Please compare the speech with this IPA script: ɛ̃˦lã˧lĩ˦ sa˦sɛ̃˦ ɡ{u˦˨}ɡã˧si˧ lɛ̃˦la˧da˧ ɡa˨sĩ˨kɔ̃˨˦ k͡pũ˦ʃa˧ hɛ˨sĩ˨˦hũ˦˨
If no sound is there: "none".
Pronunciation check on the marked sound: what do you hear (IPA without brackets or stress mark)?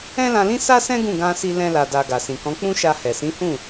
ũ˦˨